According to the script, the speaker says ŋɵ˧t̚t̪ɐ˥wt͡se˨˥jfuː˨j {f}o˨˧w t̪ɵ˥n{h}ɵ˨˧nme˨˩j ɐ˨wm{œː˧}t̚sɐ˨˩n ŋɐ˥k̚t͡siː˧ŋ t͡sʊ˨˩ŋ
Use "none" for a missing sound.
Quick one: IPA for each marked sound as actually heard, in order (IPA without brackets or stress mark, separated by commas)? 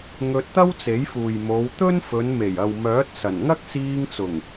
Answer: m, f, œː˨˥